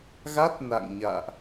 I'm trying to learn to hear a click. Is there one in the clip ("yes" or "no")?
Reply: no